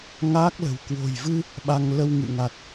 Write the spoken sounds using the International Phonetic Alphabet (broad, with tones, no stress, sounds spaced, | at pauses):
ŋ aː˦˥ k̚ l ə̤˨˩ w k w o̤˨˩ j v ɨ˧ | ɓ a˧ ŋ l ə˧ w ŋ ɨ̰˧˨ ŋ a˨˩ t̚